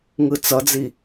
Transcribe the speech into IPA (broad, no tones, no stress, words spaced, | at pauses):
ŋɯt͡sʌd͡zi